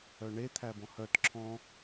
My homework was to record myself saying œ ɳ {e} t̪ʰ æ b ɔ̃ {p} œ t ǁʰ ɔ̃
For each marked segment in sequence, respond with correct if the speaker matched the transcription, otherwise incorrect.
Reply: correct, incorrect: h

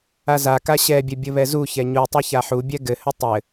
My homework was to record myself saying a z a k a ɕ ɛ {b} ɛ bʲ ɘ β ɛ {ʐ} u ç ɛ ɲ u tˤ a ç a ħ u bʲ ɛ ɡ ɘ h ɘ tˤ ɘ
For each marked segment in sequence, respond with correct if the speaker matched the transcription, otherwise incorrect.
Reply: incorrect: bʲ, incorrect: z

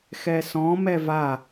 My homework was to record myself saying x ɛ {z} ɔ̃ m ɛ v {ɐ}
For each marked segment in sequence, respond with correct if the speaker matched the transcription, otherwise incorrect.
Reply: incorrect: s, incorrect: a

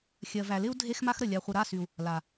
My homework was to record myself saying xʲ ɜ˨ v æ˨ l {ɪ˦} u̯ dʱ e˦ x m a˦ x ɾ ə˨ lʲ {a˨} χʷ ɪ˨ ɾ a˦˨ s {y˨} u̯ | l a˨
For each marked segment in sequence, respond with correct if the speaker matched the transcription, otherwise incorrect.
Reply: correct, correct, correct

